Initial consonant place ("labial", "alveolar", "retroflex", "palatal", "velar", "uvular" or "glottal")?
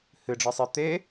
glottal